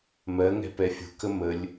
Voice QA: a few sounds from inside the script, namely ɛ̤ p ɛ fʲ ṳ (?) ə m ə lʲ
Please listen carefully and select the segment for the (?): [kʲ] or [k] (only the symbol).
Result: k